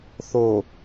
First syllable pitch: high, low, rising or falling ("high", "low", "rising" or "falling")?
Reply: low